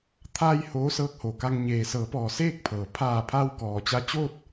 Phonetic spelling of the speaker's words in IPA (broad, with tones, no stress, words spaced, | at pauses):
t̪ʰaː˧j hoː˧˥sɤː˧˥k̚ho˩ka˧ŋ ɲeː˩sɤː˩˧pɔː˩ seː˥˨k̚pʰɤː˩ pʰaː˧˩pʰa˧w kɔː˩t͡ɕa˧t͡ɕoː˥˨t̚